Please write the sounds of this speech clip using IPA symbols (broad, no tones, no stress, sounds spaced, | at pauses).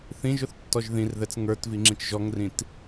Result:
θ ĩ ʒ ʊ θ tː ɔ ʒ ð ĩ r ð ɛ t͡s ŋ ə˞ t v i ŋ͡ǁ ĩ t͡ʃ ʒ ɔ ŋ r ĩ t